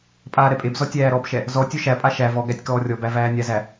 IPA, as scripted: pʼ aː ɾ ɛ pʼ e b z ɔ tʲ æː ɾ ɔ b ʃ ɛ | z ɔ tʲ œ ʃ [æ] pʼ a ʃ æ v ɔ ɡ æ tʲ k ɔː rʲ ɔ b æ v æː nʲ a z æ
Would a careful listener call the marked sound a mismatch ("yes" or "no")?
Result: no